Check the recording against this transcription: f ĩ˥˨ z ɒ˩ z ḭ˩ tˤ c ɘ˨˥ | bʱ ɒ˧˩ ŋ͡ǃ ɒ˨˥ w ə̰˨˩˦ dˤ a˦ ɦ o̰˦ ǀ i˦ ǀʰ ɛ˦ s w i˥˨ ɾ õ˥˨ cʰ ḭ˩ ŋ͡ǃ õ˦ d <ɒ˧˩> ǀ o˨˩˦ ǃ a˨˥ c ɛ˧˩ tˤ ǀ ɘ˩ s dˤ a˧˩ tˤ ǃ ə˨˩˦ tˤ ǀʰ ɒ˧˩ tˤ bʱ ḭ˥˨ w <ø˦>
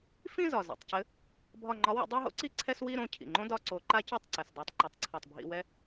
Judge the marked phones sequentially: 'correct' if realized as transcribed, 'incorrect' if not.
correct, incorrect: ɛ˦

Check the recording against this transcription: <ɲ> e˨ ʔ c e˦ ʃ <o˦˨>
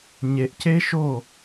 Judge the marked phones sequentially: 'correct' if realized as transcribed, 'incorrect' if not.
correct, correct

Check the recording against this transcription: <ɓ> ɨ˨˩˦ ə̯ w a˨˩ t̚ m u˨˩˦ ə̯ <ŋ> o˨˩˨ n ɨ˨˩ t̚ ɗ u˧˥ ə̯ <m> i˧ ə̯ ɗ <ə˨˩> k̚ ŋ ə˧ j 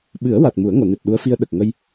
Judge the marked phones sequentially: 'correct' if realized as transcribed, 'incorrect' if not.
correct, correct, incorrect: f, correct

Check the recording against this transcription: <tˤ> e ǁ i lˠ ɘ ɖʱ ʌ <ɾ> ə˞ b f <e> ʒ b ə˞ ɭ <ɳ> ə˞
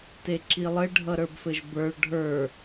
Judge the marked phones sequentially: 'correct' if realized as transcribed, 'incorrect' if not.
incorrect: t, correct, incorrect: ɘ, incorrect: ɖʱ

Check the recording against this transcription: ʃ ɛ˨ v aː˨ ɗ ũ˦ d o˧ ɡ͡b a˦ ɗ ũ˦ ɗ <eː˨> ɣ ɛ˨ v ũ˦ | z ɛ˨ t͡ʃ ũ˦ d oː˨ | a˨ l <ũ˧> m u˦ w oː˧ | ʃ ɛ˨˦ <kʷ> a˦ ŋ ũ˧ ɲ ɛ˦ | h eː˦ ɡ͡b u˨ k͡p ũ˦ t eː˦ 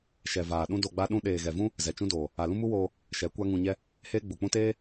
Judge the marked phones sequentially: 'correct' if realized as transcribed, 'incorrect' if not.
correct, incorrect: ũ˦, correct

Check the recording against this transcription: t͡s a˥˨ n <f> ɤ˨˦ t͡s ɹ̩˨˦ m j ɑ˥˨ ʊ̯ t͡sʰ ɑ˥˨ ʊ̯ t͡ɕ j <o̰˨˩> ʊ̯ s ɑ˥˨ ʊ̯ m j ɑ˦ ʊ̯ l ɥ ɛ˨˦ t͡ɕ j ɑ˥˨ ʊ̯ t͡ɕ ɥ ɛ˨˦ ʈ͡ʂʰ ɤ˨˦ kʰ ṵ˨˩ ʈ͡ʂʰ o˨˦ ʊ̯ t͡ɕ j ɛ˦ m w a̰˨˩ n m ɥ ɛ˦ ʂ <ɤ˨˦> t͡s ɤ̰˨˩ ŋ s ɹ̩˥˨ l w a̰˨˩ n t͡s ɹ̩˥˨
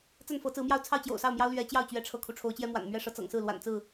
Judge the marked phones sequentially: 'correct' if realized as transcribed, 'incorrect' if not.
correct, correct, correct

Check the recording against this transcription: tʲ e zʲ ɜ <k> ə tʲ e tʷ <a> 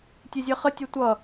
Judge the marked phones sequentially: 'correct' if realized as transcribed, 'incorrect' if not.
incorrect: χ, incorrect: ʌ

